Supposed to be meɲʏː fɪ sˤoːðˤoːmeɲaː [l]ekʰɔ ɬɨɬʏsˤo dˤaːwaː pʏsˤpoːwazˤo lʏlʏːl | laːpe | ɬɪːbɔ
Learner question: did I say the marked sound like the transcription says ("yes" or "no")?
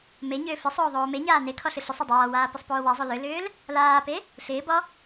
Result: no